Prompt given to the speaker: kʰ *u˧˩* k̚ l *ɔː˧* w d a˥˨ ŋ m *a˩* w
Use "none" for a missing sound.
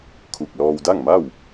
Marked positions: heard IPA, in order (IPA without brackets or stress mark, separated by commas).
u˧˩, ɔː˧, a˥˨